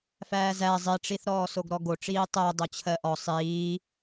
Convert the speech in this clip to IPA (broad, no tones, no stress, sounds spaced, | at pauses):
f æː z æ zˤ i ʈ͡ʂ i θ ɾ ɔː s o ɡ ɾ ɔ ɡ o ʈ͡ʂ iː tˤ ɜ dˤ o t͡ɕʰ ɜ ʔ ɔ sˤ iː